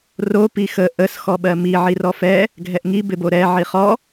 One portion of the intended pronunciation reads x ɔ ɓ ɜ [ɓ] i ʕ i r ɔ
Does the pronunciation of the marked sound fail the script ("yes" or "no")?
yes